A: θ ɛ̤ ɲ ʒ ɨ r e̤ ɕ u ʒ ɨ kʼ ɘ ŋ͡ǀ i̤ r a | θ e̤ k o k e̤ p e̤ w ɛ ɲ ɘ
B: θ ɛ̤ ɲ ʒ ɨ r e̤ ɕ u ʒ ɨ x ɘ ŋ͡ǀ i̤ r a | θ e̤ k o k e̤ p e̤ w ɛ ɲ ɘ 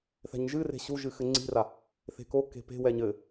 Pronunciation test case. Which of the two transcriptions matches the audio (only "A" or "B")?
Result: B